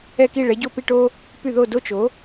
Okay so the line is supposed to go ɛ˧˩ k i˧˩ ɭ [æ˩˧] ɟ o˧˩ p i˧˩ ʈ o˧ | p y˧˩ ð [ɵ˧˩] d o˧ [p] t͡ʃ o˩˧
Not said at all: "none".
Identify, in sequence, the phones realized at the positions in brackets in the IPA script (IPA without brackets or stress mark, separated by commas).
ɛ˩˧, o˧˩, none